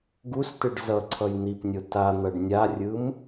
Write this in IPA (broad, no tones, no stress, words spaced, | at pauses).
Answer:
ɡustɯɖ zʌǀʰʌj n̪ipnʲo tan̪ʌɖ nʲarʲɯm